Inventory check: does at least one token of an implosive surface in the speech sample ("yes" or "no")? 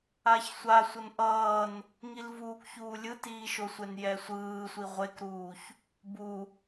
no